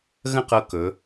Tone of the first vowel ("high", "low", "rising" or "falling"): falling